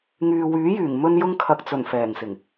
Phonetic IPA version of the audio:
ŋ yː˨ w yː˨˥ j yː˨˩ ŋ m ɵ˧ n j ʊ˧ ŋ kʰ ɐ˨ k̚ t͡s ɵ˨˩ n f ɛː˨˩ ŋ s ɪ˨˩ ŋ

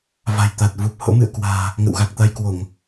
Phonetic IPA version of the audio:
v a̤˨˩ j t̪ a˨˩ t̚ v u˨˩ p̚ h o̰˧˥ m ɨ̰˧˨ ə̯ k w a̤ː˨˩ | ŋ ə̰˧˨ w ɣ a˨˩ k̚ t̪ a˧ j k w o˧˩˨ ŋ

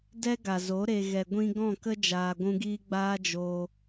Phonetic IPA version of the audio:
d ɛ˦ ɡ a˨ z o˨˦ ɾ e˨ ɣ ɛ˨ ɡʷ ĩ˧ ɡ ɔ̃˦˨ k ə˦ d͡ʒ aː˨ ɡʷ ũ˧ ɡ iː˦ ɡ͡b aː˦ d͡ʒ oː˧

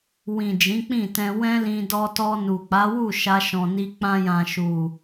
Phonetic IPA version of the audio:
w ĩ˨ d͡ʒ ĩ˨˦ k͡p ĩ˦˨ t ɛ̃˧ w ɛ̃˦ l ĩ˧ d ɔ˧ t ɔ˧ n u˨ k͡p a˨˦ w u˦˨ ʃ a˧ ʃ ɔ̃˨ n i˧ k͡p ã˧ j ã˨ ʃ u˨

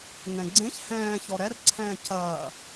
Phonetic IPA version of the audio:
ŋ ɛ̃ ɡ͡ǀ ẽ ç h ɛ̃ː ç ɔ ɾ ɛ r ǀʰ ɛ̃ː c ɐː

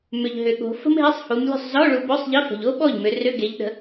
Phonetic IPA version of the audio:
m ʏ˨ ʎ ɦ ʏ˨ ɠ o̤˨˦ f ə̤˥ m ɦ e˧˥˧ sˤ h u˨˦ m lʲ ṳ˥˩ sˤ z ɔ˧˥˧ ɭ u˨˦ b ɵ˧˥˧ sˤ ʎ ə˧˥˧ f ə̤˨ ʎ o˥ ɓ ɔ˥˩ ʎ m ʏ˨˦ r ʏ˧˥˧ ɡ e˨˦ ʎ ɗ ə̤˨˦

